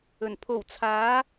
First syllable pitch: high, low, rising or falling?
low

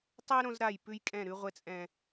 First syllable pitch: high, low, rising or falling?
high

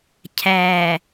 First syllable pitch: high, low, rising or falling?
low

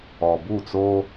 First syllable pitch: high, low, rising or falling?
low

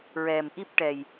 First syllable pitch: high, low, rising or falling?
low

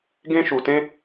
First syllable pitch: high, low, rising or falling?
high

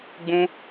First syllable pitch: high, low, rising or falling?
high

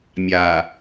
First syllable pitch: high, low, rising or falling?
low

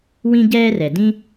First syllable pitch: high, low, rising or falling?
high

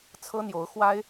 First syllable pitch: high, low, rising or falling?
high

